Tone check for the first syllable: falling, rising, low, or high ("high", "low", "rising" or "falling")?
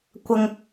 low